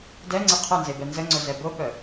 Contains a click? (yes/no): yes